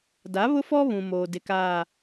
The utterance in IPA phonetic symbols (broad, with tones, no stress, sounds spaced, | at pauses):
d a˨˦ β ʊ˦ f ɔ˦ β ũ˨ m oː˨ d ɪ˨ k aː˨